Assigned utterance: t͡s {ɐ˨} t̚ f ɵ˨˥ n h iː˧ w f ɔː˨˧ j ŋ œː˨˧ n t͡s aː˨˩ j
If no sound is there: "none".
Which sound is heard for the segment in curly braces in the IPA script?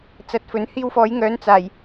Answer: ɐ˧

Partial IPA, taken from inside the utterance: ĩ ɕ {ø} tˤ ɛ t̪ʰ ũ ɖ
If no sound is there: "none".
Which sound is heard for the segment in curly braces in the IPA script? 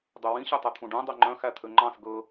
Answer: ø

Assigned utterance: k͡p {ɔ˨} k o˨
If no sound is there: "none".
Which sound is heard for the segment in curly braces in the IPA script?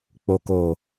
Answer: o˨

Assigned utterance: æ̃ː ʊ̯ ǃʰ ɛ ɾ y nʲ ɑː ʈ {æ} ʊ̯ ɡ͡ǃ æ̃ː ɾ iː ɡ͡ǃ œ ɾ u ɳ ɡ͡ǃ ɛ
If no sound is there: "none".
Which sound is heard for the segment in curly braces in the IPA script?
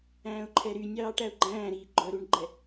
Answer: æ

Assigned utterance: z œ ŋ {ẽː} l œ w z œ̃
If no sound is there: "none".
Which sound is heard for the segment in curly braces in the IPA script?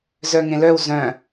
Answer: ẽ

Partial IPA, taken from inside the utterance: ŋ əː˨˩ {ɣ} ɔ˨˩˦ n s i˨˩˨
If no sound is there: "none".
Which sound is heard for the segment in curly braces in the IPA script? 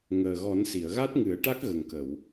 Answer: ɣ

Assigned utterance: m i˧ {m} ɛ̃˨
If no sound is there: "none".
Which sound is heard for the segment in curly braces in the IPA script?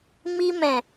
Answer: m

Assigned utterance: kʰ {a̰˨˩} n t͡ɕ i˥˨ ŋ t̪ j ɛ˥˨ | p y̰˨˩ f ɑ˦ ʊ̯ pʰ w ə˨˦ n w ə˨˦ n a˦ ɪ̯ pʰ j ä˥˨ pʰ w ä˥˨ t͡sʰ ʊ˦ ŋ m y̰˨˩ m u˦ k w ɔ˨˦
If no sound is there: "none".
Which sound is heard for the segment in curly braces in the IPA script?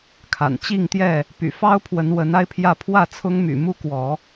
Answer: a̰˨˩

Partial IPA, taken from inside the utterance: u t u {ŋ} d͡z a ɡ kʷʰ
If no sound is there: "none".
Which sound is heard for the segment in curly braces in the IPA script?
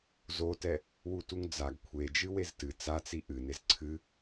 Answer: ŋ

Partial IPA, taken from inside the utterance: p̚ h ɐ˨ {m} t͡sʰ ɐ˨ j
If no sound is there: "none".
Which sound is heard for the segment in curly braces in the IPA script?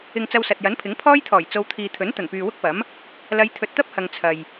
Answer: ŋ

